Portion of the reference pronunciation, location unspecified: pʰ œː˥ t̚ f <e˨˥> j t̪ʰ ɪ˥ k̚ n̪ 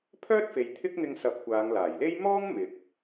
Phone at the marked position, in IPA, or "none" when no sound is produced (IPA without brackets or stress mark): e˨